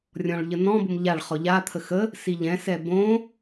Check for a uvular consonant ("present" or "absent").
present